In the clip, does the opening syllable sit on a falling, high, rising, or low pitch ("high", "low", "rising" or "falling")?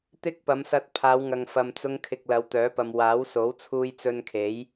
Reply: high